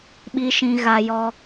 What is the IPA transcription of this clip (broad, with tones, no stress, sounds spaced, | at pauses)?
ɓ i˨ ʃ ĩ˨ ɣ a˨ j ɔ˦